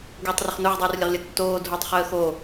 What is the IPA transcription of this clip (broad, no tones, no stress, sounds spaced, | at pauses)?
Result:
ɡ u tˤ r ə χ n o ʁ dˤ uː r lʲ ɐ ʁ lʲ ɐ tː oː dʱ o tˤ χ əː x o